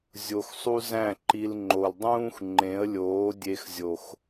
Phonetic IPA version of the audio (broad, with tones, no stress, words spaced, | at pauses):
zʲo˧x sˤu˦ zæ̃˦˨ ǃi˧l ŋ͡ǃo˨ldˤũː˦x ŋ͡ǃẽ˨˦ə̯lʲoː˨˦ dʲe˧xzʲo˨x